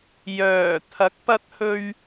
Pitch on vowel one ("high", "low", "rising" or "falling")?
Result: low